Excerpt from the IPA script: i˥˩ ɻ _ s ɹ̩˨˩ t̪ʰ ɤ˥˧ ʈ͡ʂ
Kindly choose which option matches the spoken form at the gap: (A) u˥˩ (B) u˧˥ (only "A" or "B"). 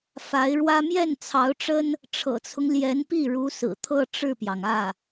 B